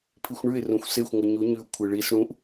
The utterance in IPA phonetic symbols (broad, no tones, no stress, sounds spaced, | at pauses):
pʰ i xʷ ɳ ʉ ɪ̯ r ũ xʷ s e xʷ ŋʷ ɨ ɲ u ɲ ʉ ʊ̯ kʷʰ ɨ ɭ i s ɽ ũ ʔ